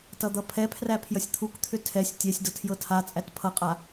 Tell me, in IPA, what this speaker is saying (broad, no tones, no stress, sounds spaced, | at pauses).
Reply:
t ʌ d̪ ʌ pʰ ɛ pʰ r æ pʰ j ʌ sʲ t̪ʰ u k t̪ʰ ʏ tʰ ɛ sʲ tʲ ɛ sʲ d ʌ tʰ j ɤ tʰ a t͡sʼ æ t pʰ ʌ qʼ a